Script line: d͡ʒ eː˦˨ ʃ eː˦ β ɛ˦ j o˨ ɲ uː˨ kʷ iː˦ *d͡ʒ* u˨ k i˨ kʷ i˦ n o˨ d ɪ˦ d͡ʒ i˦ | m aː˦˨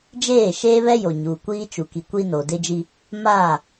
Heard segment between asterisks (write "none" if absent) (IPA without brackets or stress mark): t͡ʃ